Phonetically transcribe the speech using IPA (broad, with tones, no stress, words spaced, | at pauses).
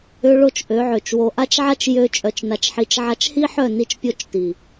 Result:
ʏ˧ɭo˦˨t͡ʃ ʔø˨˦ʕø˨t͡ʃwo˧ ʔa˦t͡ʃʕa˦t͡ʃ jø˦t͡ʃʼœ˧t͡ʃna˧t͡ʃħi˧t͡ʃ ʕa˧t͡ʃhi˦ħœ˦˨ ni˦t͡ʃpʲo˦t͡ʃti˨